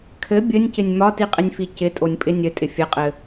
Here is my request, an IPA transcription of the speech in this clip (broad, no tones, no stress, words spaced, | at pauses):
kʰɘ bʲɘnʲcɪnʲ mɒtiqʼɪnʲfi cɪtʼonʲpʼɪ nʲɘtʼɪ fʲɘqʼɘ